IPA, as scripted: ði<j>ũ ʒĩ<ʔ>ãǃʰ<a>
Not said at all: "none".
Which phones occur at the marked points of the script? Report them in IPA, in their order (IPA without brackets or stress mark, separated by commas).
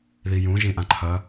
j, ʔ, ɐ